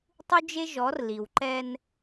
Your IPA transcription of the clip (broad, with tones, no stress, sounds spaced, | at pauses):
tˤ u˦ d͡ʒ e˦ ʒ ɔ˨˦ r l i˨ w ǃ ɛ˦ n